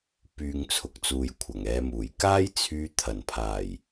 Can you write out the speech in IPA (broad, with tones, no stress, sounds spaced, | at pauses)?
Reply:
p yː˨ ŋ t͡sʰ ʊ˨˥ k̚ t͡s uː˨ j kʷʰ ɐ˨˩ ŋ ɛː˨˧ m uː˨˩ j k aː˥ j t͡sʰ yː˧ t̪ʰ ɐ˨˩ n pʰ aː˨˩ j